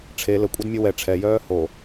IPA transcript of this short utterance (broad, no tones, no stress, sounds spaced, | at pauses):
ʈ͡ʂʰ e l ə kʷʼ ɛ d mʲ ə w ɛ ʈ͡ʂʰ ɛ j œː h o